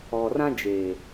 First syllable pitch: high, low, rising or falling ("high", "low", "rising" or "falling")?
low